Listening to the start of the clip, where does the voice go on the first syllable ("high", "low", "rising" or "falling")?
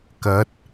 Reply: rising